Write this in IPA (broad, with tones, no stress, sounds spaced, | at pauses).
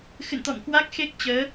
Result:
x ɨ̰˧˨ n t̪ ɔ̰˧˨ m k w a˦˥ k̚ x e˦˥ k̚ t͡ɕ əː˨˦